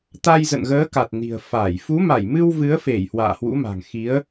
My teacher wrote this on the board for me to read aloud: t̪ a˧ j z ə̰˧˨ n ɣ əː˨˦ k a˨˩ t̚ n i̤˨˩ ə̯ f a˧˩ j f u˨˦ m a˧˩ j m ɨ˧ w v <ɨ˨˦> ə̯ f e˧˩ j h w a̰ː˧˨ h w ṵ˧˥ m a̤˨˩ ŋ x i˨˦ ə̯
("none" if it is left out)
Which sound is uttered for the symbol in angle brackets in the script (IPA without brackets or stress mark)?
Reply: ɨ˨˦